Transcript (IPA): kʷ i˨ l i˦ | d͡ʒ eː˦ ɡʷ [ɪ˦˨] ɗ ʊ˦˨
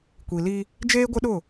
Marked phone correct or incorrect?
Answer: incorrect